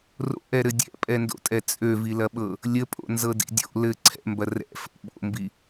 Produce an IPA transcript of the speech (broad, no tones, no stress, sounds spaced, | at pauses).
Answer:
r o̰ ʔ ɛ ɾ ɘ dʲ ɛ̰ pʼ ɛ n d o̰ tʼ ɛ t͡sʼ ø v i l ɐ ɓ ɤ | lʲ ə pʼ o̰ n z ɤ d ḭ dʲ o̰ l ɘ ǀʰ ɛ̰ m b ɐ r ɛ̰ f ə̰ ɓ o̰ m b i